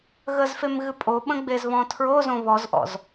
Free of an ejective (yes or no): no